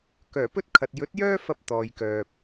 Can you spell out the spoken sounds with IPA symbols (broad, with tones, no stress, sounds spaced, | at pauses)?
k œː˨˩ p ɵ˥ t̚ kʰ ɐ˨ t̚ j ɵ˨˥ t̚ j œː˥ f ɐ˧ p̚ t̪ ɔː˨ j k œː˨ p̚